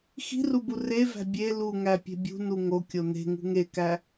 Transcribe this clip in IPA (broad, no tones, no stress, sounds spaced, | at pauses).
x i̤ r u b u r e v æ̤ bʲ e l u ŋ æ pʲ e̤ bʲ ṳ n u ŋ o kʲ o n e̤ ŋ ṳ ŋ e k æ